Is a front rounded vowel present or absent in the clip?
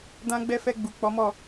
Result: absent